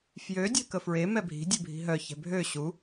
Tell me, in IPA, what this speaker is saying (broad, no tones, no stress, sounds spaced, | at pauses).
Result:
f j ø dʲ ɛ̤ k ə f ɹ e m ɛ bʱ i̤ dʲ e bʱ i̤ ɦ œ ç ɛ̤ bʱ ø ɕ u